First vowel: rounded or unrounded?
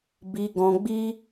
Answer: unrounded